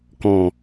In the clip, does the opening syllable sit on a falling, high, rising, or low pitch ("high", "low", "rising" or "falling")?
low